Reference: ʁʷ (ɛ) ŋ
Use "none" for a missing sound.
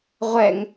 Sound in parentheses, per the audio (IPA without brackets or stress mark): ɛ